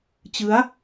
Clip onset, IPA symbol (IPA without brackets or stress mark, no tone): t͡ɕ